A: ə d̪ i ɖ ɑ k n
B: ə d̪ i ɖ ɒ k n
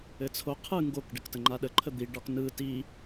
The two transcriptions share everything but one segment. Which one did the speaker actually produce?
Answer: B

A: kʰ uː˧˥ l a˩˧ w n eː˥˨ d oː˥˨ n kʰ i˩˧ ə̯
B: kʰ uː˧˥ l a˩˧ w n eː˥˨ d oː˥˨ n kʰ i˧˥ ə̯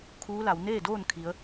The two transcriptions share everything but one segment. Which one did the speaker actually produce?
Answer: A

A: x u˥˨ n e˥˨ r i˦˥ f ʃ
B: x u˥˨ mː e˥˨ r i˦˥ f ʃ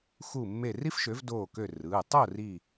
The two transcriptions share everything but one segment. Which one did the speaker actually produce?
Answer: B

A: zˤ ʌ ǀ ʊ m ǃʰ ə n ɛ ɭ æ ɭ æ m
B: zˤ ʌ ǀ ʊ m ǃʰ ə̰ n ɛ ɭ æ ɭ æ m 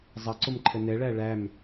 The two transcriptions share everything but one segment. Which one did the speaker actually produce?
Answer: A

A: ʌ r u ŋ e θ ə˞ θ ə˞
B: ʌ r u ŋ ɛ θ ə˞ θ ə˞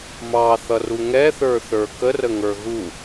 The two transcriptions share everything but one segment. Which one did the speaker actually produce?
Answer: B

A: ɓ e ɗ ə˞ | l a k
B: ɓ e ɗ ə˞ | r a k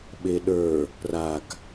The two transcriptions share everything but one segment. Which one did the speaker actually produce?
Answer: B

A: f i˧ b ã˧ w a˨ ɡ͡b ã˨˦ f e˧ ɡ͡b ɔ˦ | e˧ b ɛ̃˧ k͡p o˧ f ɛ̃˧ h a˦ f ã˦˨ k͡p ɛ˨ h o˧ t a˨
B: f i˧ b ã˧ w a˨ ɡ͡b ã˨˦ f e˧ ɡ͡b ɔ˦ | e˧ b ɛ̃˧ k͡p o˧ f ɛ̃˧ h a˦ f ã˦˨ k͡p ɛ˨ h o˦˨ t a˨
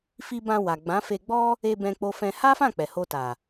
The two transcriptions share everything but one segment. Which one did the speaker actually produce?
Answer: A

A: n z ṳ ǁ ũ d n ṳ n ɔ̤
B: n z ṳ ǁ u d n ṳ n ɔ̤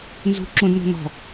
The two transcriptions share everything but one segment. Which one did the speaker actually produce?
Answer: A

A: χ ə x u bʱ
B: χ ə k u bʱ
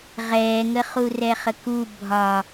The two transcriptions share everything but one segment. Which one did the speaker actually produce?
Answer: B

